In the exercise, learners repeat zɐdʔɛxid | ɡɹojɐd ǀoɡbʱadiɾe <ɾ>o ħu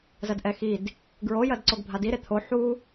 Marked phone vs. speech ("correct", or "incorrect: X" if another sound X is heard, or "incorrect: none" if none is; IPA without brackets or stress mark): incorrect: t̪ʰ